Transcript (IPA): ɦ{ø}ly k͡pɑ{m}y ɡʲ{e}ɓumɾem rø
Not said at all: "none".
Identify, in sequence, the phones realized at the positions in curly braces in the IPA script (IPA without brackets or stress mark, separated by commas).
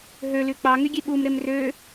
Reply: ø, ŋ, e